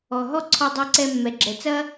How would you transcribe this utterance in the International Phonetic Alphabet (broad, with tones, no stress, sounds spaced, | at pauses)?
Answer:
ɔ˨ ɦ ɔ˦ ǀʰ ɔ˧ dˤ ɛ˧ ǀ ɛ˧ mː ɛ˨ ɡ͡ǁ ɛ˨ t͡s ɐ˦